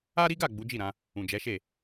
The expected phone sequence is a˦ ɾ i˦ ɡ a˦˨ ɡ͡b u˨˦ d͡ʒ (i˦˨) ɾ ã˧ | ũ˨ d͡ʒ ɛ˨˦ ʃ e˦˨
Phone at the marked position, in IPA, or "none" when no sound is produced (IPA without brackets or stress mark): i˦˨